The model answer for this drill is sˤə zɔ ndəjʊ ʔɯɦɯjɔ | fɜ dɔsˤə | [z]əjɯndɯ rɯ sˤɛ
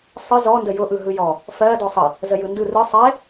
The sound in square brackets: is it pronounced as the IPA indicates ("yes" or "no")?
yes